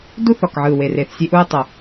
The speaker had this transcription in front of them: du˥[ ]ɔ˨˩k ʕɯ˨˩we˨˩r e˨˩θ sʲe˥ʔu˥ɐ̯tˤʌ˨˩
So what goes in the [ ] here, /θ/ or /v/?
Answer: θ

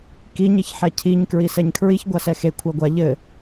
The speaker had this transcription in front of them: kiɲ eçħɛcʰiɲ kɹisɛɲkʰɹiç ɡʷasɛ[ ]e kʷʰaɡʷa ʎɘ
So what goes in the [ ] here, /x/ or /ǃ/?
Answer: x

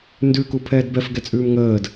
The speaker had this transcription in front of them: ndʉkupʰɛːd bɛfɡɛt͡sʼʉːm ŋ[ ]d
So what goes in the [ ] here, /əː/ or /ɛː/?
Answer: əː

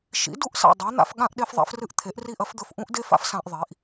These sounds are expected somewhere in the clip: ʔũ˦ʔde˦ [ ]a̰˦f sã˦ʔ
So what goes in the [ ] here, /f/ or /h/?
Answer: f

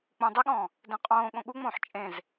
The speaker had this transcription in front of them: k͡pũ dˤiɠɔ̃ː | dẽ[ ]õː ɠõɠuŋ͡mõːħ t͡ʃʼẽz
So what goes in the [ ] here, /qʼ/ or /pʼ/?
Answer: qʼ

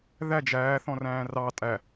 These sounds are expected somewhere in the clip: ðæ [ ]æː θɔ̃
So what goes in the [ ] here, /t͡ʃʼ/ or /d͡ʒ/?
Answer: d͡ʒ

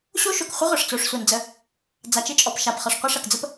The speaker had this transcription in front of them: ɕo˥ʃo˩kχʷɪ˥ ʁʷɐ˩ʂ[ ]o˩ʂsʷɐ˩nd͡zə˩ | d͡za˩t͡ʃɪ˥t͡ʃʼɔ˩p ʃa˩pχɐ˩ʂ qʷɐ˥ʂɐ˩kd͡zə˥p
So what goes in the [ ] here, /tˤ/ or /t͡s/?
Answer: t͡s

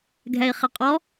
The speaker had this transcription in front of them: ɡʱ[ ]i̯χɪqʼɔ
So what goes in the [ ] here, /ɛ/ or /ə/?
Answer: ɛ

